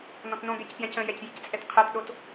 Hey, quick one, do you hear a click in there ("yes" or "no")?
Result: no